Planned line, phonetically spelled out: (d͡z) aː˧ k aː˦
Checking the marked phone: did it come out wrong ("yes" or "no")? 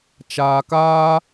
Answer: yes